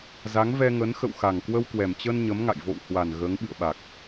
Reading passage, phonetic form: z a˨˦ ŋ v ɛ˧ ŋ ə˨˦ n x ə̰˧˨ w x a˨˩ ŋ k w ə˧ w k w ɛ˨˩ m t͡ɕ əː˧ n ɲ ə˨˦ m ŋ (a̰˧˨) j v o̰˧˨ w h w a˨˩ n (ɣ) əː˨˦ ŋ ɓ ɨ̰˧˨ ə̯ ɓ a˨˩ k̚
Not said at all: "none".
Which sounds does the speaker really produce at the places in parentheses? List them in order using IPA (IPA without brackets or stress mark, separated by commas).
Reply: a̰˧˨, ɣ